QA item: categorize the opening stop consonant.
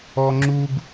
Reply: click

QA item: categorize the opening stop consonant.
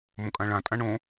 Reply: ejective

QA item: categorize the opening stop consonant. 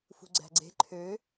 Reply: click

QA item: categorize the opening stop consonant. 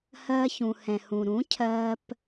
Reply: aspirated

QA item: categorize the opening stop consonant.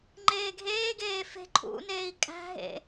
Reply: click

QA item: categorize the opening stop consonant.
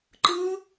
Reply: click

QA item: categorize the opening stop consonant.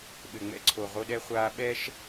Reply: implosive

